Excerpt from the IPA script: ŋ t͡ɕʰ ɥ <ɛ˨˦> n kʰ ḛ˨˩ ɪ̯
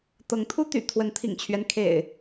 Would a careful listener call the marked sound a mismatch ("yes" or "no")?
yes